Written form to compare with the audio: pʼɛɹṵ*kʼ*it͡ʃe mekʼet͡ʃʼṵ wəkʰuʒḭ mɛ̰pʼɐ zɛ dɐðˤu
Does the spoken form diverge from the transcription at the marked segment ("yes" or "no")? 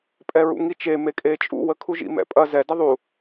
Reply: yes